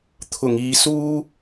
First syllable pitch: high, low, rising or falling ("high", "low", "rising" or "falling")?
low